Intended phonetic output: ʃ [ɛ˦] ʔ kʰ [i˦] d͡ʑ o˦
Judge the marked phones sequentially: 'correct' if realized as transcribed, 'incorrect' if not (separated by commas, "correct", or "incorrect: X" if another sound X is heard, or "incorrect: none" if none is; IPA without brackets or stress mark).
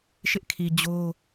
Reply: incorrect: ɪ˦, incorrect: i˨